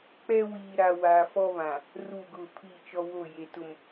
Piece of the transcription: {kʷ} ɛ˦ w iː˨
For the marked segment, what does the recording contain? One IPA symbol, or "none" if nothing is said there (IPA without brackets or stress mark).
k͡p